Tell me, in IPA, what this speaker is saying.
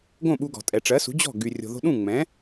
ɡ õ˥˩ ɓ u˧ ɡ ɔ̤˩ tʼ ɛ˩ ʈ͡ʂ ɜ˩˥ s ṳ˩˥ d͡ʑ ɔ̤˥˩ ɡ y˩ rʲ o̤˩ ð o̤˧ ɗ ũ˥˩ ŋ͡m ɛ̃˩˥

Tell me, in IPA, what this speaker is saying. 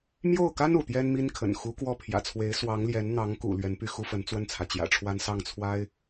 m j o˥˩ ʊ̯ k a˥ n ṵ˨˩ t̪ j ɛ˥ n m i˥ n kʰ ə̰˨˩ n x u˧˥ k w ɔ˥˩ pʰ j ä̰˨˩ t͡sʰ w e˧˥ ɪ̯ s w ɑ˧˥ ŋ l j ɛ˧˥ n n̪ ɑ˧˥ ŋ k ṵ˨˩ l ɥ ɛ˧˥ n p y˥˩ x u˥ f ə˧˥ n t͡s w ə˥˩ n t͡sʰ ä˩ t͡ɕ j ä̰˨˩ ʈ͡ʂʰ w a˥ n s ɑ˥˩ ŋ t͡sʰ w a˥ ɪ̯

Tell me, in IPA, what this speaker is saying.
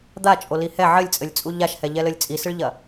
d̪ a t͡ʃʼ o l i h ɛ ʕ ɘ lʲ t͡sʼ ɘ lʲ t͡sʼ u ʎ a ʃ h ɛ ʎ ɛ l ɘ lʲ t͡sʼ i s ɨ ɭ ʎ ɐ

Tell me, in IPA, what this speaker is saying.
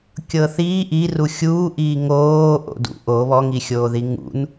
kʲ ɤ θ iː ʔ i r u xʲ uː ʔ iː ŋ oː ʔ o̰ d ṵ ʔ o β ɔ ŋ i xʲ oː ð i ŋ ṵ n

